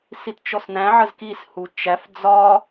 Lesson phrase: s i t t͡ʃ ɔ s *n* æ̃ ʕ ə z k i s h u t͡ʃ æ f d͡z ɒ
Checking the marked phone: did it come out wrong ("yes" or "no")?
no